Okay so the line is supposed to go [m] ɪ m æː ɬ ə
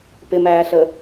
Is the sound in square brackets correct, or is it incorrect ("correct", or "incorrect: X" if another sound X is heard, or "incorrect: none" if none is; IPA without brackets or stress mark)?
incorrect: p